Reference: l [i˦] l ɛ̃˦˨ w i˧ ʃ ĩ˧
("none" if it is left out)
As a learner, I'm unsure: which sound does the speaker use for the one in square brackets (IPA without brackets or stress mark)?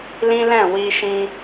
ĩ˦